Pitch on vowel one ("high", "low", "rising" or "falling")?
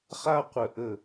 high